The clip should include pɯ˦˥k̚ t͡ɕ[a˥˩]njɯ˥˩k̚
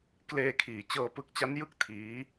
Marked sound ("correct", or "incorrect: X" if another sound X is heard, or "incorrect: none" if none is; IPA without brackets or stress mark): incorrect: a˦˥